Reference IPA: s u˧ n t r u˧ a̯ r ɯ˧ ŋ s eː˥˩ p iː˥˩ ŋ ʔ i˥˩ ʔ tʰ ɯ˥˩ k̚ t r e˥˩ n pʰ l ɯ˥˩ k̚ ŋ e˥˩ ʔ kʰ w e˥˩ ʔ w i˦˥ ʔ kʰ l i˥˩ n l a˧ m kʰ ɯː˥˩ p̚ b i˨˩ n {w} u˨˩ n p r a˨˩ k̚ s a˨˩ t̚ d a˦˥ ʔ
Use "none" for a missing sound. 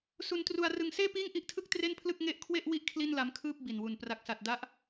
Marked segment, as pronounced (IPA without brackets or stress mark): w